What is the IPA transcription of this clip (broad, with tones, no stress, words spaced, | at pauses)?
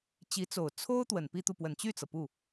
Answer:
t͡ɕi˧˥t͡so˨˩ʊ̯ t͡sʰo˥ʊ̯ t̪wə˨˩npi˥˧t̪u˥˩ pwə˨˩nt͡ɕy˥˩t͡sɤ˩ pu˥˩